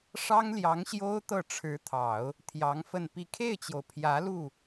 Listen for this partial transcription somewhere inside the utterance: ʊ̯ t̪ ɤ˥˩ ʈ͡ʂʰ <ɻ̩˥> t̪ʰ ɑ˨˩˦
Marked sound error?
yes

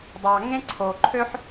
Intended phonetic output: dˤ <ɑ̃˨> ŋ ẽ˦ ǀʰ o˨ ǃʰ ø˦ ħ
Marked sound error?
yes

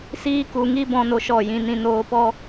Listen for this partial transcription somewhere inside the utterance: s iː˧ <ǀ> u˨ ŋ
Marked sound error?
yes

